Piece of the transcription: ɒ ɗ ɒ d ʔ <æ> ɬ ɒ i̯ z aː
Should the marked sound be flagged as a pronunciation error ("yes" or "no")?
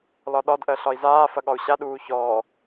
yes